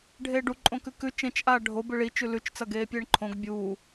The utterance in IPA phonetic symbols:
ɖʱ eː ɖ u ǃʼ õ k ʉ k ʉ t͡ʃ ẽ t͡ʃ ʔ aː ɖʱ o b ɨ ɭ i t͡ʃ ʉ l ʉ t͡ʃ t͡s ɐ ɡ eː pʲ eː ɳ ǃʰ õ ɡ bʲ uː

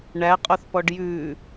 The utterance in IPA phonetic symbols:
ɳ æ qʼ o θ p ɔ ɖ j ʉ

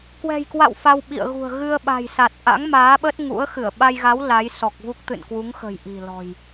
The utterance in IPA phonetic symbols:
k w ɛ̤˨˩ j k w a̰˧˨ w f a˧ w ɓ ḭ˧˨ ə̯ ɣ ṳ˨˩ ə̯ ɣ ɨ˧ ə̯ ɓ a̤˨˩ j s a˨˩ t̚ ʔ a̰˧˥ ŋ m aː˨˦ ɓ ə˦˥ t̚ ŋ ṵ˧˥ ə̯ x ɨ˧˩ ə̯ ɓ a˧ j ɣ a˨˦ w l a˨˦ j s ɔ˨˩ k̚ v u˦˥ k̚ t̪ ɨ̰˧˨ n k w u˨˦ ŋ x ə̤˨˩ j ʔ i̤˨˩ l ɔ̤˨˩ j

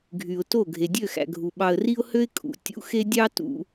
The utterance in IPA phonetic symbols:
ɡʱ y˨ ʊ̯ t o˦˨ ɡʱ e˨ dʲ ø˦˨ x æ̰˨ ɡʱ u˨ ɓ ɑ˨ ə̯ r i˦ ʊ̯ h ø˦ ɪ̯ kʼ ṵ˨ tʲ ṵ˦ x e˦ dʲ ɑ˦ t ṵ˨

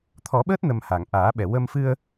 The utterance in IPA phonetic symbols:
t̪ʰ ɔ˨˩˦ ɓ əː˦˥ t̚ n ə˨˩ m h a˨˩˨ ŋ ʔ aː˨˩˦ ɓ ɛ˨˩ w ə˧ m f ɨ˧ ə̯

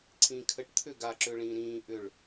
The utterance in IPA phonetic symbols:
ǀʰ ĩː kʰ ə ʈ t̪ʰ ʏː ɡ a ǁ ʏː ɭ ĩː ɾ ĩː ʔ ʏ ɭ

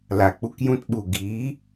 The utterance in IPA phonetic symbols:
l a˨ k͡p u˧ k j ũ˧ t ɓ u˨ ɡ iː˨˦

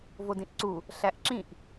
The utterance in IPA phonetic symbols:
v o d ĩ ʔ ǀ u | ɬ æ ʔ ǁ ĩ ʔ

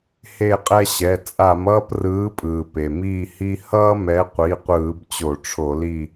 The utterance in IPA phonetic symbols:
h e˦˨ qʼ ɛ˦ ɕ ɛ˩˧˩ t͡sʼ a˧˩˧ m ʌː˦ p r ɯː˨˦ pʼ ɯː˩ p e˩ m iː˦˨ h i˦ h ʌː˦ m ɛ˨˦ qʷ i˩˧˩ qʷ ɯː˧˩˧ b t͡ɕ o˧˩˧ ʈ͡ʂʰ o˧˩˧ l i˦˨

